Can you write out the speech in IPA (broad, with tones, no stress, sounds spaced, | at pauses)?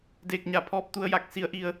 d eː˧˩ k̚ ɲ a˧˩ pʰ ɔː˧ p̚ t̪ u˧ ə̯ j a˧ k̚ s i˩ ə̯ ʔ i˧˩ ə̯